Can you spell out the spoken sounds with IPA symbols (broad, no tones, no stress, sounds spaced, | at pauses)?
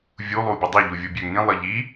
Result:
vʲ u lˠ uː bʲ u dˤ e ʎ u vʲ u bʲ ø ŋ ĩ lˠ ɤ ʎ i